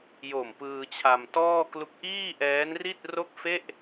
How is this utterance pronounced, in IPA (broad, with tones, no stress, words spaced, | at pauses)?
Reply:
jo˨˩m pɯː˧t͡ɕʰa˧mtɔː˥˩ klu˦˥k̚ ʔiː˥˩ ʔɛː˦˥nri˥˩t̚ro˥˩k̚ fe˥˩ʔ